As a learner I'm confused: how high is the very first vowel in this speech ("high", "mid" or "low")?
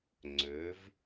mid